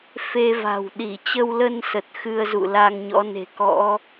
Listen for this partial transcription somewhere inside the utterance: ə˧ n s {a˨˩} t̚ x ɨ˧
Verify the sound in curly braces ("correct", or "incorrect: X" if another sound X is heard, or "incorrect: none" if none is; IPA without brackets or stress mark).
incorrect: ə˨˩